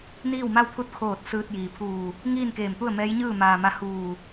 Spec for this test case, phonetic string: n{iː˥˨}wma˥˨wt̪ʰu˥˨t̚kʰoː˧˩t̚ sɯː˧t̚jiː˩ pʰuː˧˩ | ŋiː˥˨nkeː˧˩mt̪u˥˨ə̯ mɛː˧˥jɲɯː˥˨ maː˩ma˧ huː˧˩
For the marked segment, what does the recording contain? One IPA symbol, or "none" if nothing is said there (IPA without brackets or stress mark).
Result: iː˥˨